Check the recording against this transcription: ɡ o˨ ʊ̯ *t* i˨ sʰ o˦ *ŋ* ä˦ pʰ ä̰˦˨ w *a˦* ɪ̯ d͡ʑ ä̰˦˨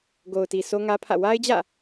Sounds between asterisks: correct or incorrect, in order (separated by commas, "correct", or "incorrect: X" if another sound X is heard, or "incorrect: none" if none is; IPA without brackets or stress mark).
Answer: correct, correct, correct